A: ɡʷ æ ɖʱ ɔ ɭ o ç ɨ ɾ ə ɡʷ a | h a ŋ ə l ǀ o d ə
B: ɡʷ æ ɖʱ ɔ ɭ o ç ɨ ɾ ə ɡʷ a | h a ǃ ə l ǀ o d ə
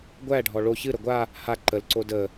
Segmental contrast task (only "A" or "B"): B